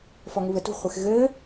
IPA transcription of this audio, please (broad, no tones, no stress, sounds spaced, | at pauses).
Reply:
f ɔ ŋ u β ɘ t ṳ χʷ e x ɣ ɘː